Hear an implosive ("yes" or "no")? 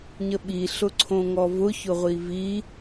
yes